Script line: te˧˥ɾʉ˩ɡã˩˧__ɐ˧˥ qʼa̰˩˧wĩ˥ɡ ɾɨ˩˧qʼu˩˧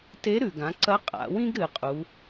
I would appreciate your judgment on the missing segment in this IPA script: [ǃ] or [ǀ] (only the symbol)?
ǀ